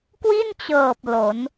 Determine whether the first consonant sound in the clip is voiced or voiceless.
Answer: voiceless